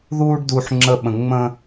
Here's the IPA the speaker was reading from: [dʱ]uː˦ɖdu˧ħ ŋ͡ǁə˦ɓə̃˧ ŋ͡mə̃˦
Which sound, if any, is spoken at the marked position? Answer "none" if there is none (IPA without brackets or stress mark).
ð